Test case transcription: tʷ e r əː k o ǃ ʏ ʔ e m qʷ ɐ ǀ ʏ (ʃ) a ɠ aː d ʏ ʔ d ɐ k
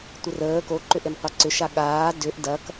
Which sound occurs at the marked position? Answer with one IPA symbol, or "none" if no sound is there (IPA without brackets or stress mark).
ʃ